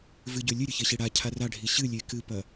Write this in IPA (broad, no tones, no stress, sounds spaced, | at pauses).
v ɨ ɟ ɵ lʲ ɨ ɾʲ ɵ ç e ɕ i ɽ a cʰ a r a ɖʱ i ɕ ɨ lʲ e k ɨ p ɐ